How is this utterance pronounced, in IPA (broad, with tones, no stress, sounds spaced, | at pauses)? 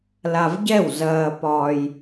l a˧ v ɟ ɛ˥˨ w z ɐː˧ p ɒː˧ j